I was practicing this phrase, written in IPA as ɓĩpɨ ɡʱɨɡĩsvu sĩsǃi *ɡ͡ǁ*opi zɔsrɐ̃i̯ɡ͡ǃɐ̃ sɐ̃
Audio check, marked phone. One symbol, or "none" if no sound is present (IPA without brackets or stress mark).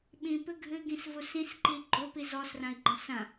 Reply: ɡ͡ǃ